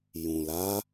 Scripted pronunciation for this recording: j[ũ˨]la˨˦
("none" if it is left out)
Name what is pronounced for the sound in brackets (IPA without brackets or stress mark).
ũ˨